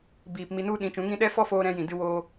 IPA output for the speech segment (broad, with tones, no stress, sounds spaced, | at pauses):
b iː˨ p m i˧ n u˦ ɗ ĩ˨˦ t͡ʃ ũ˨˦ ŋ ĩ˦ ɗ ɛ˦ f ɔ˦ f oː˧ ɾ ɛ̃˦ j ĩ˨ d ɨ˧ w oː˧